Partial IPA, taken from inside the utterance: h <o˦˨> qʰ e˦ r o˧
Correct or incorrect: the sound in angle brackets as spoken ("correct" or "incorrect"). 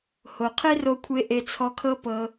incorrect